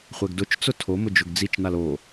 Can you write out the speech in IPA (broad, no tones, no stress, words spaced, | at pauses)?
χʷɛɡdʊt͡ʃt͡sʊ tʰomʊ d͡ʒʊɡd͡zit͡ʃnal o